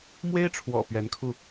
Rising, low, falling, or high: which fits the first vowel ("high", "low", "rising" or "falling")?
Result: high